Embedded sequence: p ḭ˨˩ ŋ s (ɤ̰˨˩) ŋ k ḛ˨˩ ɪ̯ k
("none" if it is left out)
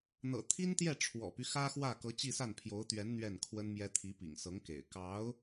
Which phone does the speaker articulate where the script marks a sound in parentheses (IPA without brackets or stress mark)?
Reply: ɤ˧˥